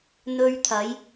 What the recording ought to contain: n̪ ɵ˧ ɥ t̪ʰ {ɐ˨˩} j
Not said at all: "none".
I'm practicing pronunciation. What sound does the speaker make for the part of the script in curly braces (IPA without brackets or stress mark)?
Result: ɐ˨˧